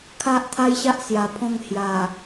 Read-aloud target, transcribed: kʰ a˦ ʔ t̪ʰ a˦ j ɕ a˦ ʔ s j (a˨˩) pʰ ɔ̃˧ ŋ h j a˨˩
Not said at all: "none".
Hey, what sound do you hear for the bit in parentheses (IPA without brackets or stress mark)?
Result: a˨˩